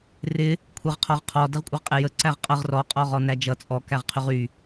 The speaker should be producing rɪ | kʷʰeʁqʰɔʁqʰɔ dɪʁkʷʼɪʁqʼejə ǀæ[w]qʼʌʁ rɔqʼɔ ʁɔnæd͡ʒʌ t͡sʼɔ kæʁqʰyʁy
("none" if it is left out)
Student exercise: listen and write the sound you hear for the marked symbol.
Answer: ʁ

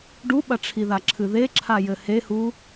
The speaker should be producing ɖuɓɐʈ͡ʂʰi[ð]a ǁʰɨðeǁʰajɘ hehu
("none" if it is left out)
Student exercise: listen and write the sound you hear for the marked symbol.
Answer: ð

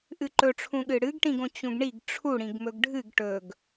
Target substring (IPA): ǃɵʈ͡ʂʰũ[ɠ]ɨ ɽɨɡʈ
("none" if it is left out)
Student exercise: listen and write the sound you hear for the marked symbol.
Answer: ɠ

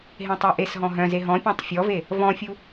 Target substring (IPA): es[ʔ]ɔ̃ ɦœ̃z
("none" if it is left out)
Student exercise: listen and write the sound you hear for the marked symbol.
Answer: ɦ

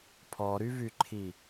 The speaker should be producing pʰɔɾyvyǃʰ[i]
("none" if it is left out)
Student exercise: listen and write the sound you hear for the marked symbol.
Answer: i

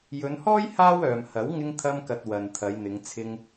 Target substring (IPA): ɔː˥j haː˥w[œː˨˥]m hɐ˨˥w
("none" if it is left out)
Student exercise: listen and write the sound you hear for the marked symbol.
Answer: œː˨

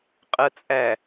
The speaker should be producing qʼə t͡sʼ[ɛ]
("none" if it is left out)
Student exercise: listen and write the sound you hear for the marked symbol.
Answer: æ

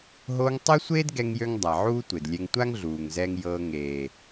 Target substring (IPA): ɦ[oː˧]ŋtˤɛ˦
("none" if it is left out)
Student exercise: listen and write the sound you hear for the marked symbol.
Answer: oː˧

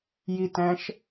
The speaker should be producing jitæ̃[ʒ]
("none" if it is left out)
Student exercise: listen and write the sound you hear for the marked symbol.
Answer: ʃ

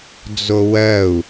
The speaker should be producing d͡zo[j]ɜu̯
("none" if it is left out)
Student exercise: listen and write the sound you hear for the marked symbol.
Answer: w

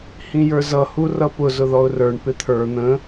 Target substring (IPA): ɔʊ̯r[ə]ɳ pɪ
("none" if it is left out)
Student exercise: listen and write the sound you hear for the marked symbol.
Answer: ə˞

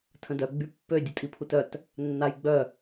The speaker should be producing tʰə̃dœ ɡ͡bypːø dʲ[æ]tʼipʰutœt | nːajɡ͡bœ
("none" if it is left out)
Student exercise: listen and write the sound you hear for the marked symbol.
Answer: ə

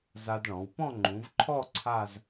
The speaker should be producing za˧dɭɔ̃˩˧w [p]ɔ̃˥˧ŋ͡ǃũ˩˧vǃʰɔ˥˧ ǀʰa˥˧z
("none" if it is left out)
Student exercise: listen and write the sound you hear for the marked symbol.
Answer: p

